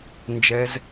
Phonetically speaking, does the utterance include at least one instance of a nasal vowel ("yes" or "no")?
no